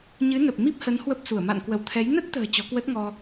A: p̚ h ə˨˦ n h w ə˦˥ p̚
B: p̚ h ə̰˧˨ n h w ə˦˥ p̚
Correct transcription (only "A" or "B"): A